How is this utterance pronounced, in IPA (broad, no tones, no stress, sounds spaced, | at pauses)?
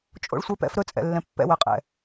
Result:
t͡ʃʼ o̰ ɭ sʷ ɛ p ɛ̰ f ɾ ɵ t͡sʼ ɛ̰ lː ɛ̃ pː ɛ̰ w ɛ qʼ ɛ̰